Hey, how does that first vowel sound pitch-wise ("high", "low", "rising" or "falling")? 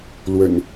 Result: low